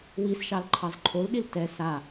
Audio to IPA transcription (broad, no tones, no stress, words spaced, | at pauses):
wisʃɑlǃʰɑz ǃʰolɗil tɛ sa